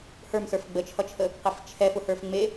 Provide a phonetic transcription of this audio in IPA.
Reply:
hə˞msə˞f ɡ͡bət͡ʃʰʌt͡ʃʰə | qeft͡ʃʰɛfʊ hə˞fŋ͡me

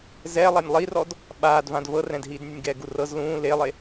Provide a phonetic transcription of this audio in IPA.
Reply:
zɛːlˠanʲ lˠirɔd | ɓaːdvãd vɤrɛ̃dɦiːdnʲunʲ ɡɛːɡurɤz lũː lelˠe

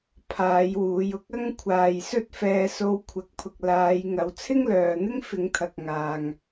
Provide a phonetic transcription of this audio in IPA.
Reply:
pʰaː˨˧j wuː˨˧jʊ˥k̚ ɐ˥ŋkʷʰaː˨jsɵ˥t̚ fɛː˧so˧w kʷʰɐ˨˥k̚pʰʊ˨k̚ laː˨˧jŋɐ˨w t͡sʰɪ˥ŋlœː˨n̪ɪ˥ŋ fɪ˨˧ŋt̪ʰɐ˨k̚ŋaː˨ŋ

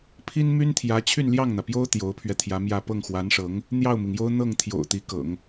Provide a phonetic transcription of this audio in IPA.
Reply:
pʰi˥nmy˥nt̪ʰjä˧˥ t͡ɕʰy˥˧nljɑ˥˩ŋn̪ä˩pjo˥ʊ̯ t̪jo˧˥ʊ̯pʰɥɛ˧t̪ʰjä˧˥mjä˥˧ pɤ˥˩ŋxwa˧˥nʂɤ˧˥ŋ | n̪jɑ˥˩ʊ̯mi˩ŋjo˥ʊ̯ n̪ɤ˥˩ŋ t̪ʰjo̰˨˩ʊ̯ t̪i˧˥kɤ̰˨˩˦ŋ

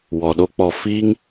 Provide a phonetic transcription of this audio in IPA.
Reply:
wɔ˨ɗo˦ k͡pɔ˨fiː˦ŋ

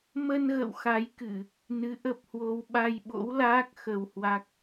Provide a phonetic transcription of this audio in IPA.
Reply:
mə˧nɣə̰˧˨w xa˨˦jkɨ˧˩˨ | nɨ˨˦ʔə˦˥p̚hwo˧w ɓa˧jɓo̰˧˥wlaː˦˥k̚ xə˧whwa˦˥k̚

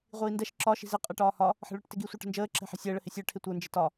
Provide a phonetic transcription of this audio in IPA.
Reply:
ʁʷiːndɛʃ ǁɒ ʃi̤zɪ qʼɛʈɒːhɒ | ħə̤ɭə˞ʈtɪɡi sʷə˞ʈə̤nd͡ʒəː ǁɛ̤ħɛ̤sʲəː ɭəhɪsʲə˞ ʈʰɪtʷə˞ nd͡ʒɪtɒ

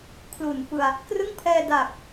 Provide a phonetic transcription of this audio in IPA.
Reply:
kʰlu˨˩nfɯ˧a̯ | krɯ˥˩ŋ pʰɛː˧daː˨˩k̚

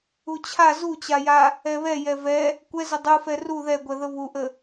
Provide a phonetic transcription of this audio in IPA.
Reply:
ut͡ɕʰa zut͡ɕaja | ɛβɛ jɛvɛ | kʷɛzə dˤufɛ ru ðɛɡʷɛ ðəβuʔə

